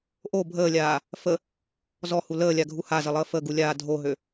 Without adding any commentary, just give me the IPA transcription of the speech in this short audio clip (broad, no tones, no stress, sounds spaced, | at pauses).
ʔ o bʱ əː lʲ aː | f ə | z ɔ h u l əː lʲ a ɡʱ u h a z ə lˠ əː f ə ɡ u lʲ aː dʱ o ɦ ø